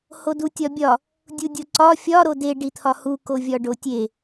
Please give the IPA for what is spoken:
hodutʲɒbʲɒ | dʲudʲoǀɒ fʲɒ ɾode ɖit̪ʰɒhu kovʲɒɖotʲe

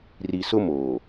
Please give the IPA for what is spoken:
ri˨sʊ˦ moː˨

